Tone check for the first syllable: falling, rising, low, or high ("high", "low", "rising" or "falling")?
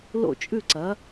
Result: falling